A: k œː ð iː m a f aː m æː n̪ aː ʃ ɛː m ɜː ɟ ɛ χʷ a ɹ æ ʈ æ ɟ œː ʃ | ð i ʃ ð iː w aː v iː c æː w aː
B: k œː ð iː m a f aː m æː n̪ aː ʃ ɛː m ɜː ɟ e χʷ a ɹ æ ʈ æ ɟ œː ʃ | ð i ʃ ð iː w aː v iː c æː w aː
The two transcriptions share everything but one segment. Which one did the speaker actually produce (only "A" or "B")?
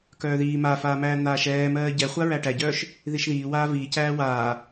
A